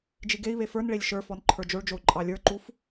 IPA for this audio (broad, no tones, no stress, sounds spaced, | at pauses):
d͡ʒ i ɡ e i̯ β e f ə˞ n ɭ e lʲ ʃ ə˞ f ɔ n ǃʰ ə˞ d͡ʒ o ɭ d͡ʒ o u̯ ǃʼ ɑ lʲ ə˞ ǃ u f